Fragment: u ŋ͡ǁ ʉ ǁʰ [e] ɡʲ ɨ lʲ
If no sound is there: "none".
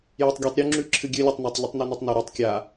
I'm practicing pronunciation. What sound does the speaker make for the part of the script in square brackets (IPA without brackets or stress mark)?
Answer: ɨ